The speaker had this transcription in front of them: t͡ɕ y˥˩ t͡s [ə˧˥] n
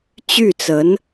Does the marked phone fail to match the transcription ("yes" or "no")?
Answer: no